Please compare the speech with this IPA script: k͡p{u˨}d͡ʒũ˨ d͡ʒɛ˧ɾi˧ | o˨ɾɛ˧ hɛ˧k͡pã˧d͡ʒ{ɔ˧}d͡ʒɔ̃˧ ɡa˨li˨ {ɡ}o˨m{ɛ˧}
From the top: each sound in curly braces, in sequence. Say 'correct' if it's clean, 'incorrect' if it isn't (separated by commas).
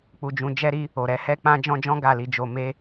correct, incorrect, incorrect, incorrect